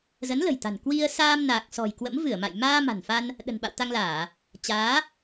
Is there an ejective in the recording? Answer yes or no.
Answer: no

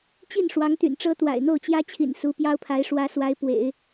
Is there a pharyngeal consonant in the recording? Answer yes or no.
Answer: no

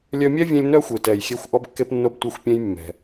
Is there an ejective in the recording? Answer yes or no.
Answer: no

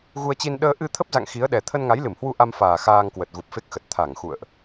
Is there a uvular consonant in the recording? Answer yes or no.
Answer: no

